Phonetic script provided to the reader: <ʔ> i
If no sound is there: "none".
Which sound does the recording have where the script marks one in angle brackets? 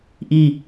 ʔ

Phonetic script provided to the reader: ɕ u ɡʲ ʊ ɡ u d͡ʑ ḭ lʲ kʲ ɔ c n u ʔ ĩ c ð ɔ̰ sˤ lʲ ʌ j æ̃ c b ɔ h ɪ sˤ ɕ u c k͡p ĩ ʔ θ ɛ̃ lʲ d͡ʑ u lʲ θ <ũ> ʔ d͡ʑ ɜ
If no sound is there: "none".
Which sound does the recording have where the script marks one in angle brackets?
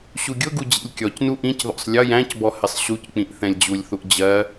u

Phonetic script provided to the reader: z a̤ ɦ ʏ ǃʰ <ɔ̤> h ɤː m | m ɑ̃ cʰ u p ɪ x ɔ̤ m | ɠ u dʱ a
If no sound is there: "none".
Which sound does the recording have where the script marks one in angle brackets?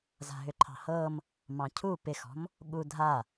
ɑ̤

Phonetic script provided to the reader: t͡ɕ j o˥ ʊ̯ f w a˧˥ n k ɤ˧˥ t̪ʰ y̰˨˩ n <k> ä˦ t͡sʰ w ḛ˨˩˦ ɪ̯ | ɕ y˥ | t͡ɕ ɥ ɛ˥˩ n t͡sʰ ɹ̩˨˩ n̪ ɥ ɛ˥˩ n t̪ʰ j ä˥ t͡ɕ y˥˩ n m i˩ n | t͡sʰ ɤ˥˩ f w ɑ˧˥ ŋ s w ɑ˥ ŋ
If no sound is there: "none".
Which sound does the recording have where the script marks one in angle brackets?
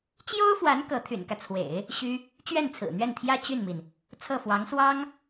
k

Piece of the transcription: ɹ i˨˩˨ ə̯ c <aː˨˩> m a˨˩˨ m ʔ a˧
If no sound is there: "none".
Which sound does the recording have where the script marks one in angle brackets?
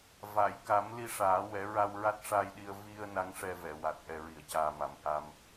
aː˨˩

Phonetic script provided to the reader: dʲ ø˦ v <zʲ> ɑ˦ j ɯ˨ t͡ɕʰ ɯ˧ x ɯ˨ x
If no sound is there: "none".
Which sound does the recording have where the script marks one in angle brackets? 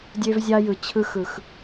zʲ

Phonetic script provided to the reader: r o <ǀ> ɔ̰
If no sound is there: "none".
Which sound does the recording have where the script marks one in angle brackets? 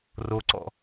ǀ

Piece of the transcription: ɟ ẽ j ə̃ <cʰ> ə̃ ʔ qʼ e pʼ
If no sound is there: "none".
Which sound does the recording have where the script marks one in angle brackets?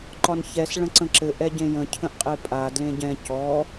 cʰ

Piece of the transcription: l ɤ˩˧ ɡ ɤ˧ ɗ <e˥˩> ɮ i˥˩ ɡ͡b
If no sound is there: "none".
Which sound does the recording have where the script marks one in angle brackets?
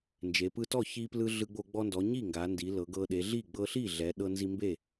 e˩˧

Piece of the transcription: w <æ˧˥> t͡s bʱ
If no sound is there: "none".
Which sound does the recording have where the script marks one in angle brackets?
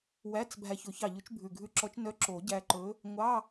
æ˧˥˧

